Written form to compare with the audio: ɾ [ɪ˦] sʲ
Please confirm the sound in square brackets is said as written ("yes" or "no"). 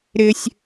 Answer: yes